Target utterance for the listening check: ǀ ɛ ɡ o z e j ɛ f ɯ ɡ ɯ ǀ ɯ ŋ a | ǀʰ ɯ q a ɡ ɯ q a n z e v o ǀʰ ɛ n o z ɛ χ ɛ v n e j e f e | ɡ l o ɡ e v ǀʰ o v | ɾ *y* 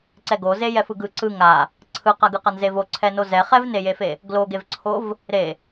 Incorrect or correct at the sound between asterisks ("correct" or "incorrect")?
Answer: incorrect